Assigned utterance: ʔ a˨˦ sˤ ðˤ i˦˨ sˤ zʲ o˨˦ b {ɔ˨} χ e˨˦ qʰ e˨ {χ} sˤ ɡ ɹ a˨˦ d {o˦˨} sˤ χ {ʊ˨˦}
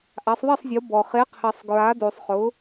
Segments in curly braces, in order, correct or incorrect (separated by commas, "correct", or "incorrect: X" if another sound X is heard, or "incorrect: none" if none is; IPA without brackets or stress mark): correct, incorrect: none, incorrect: o˨, correct